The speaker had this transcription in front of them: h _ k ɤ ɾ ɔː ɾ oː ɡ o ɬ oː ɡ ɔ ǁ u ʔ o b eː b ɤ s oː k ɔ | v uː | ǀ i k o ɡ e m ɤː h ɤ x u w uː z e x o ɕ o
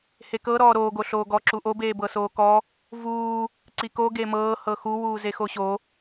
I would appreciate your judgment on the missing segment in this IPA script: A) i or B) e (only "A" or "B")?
B